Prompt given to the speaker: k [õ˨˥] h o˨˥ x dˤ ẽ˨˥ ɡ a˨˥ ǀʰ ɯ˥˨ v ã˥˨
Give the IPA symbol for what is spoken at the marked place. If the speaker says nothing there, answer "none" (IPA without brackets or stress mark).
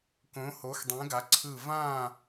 õ˨˥